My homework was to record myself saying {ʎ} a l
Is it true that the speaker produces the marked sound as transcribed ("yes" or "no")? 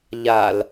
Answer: yes